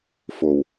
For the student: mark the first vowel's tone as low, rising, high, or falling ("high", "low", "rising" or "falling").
low